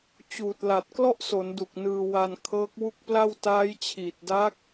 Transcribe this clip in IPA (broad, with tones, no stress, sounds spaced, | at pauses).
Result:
t͡ɕ uː˨˩ t̚ l a˨˩ t̚ k l ɔ˥˩ ʔ s o˩˦ n d u˨˩ k̚ n ɯː˧ w a˧ n kʰ ɤː˦˥ k̚ w u˥˩ k̚ p l a˥˩ w t aː˦˥ j t͡ɕʰ iː˨˩ t̚ d a˦˥ k̚